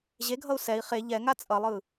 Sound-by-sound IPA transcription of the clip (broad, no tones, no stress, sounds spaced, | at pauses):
ʑ e ɡʱ ʌ u̯ s ɛ i̯ χ e ʎ ɛ ŋ a t͡sʼ ʌ lˠ ɯ